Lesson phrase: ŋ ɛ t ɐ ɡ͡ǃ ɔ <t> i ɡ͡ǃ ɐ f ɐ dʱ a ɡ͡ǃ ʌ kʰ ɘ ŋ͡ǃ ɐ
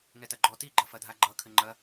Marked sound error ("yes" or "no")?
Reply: no